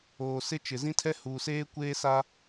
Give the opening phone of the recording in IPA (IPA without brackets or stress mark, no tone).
oː